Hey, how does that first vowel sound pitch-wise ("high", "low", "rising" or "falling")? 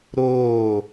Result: falling